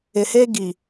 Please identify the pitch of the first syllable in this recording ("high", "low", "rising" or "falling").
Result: low